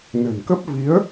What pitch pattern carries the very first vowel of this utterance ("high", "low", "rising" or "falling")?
low